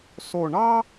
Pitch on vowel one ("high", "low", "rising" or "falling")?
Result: low